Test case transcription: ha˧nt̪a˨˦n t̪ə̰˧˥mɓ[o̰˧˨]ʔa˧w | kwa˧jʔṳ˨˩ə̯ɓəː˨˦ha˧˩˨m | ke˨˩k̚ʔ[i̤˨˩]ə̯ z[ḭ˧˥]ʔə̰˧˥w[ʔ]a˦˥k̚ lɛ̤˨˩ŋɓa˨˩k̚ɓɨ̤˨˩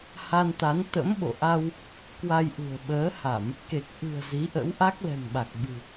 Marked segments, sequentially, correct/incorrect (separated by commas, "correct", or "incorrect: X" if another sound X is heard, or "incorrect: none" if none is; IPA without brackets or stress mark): correct, incorrect: ɨ̤˨˩, incorrect: i˨˦, correct